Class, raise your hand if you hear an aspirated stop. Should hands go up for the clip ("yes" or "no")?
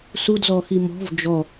no